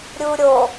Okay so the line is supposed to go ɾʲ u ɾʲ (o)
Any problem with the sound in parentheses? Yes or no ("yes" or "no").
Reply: no